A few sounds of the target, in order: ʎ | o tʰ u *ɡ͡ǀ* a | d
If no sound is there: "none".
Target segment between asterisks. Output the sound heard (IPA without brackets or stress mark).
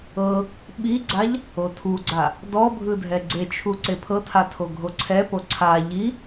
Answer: ɡ͡ǀ